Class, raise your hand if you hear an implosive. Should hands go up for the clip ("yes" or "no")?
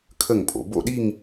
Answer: yes